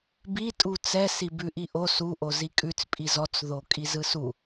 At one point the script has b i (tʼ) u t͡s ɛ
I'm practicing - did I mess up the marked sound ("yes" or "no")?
no